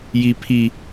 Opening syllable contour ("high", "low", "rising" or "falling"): high